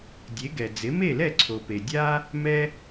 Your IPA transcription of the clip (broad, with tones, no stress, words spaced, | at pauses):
dʲe˩˥ɡɛ˩ d͡zɪ˩˥me˥˩lɛ˥˩ ǀʰo˩pe˩ dʲa˥ | mɛ˥